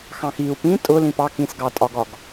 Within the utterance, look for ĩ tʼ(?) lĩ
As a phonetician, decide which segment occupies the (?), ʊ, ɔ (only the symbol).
ʊ